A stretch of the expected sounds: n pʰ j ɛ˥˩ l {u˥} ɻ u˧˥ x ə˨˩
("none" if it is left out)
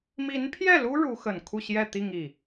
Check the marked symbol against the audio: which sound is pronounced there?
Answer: u˥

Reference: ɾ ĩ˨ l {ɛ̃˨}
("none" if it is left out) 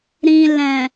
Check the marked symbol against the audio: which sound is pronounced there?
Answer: ɛ̃˨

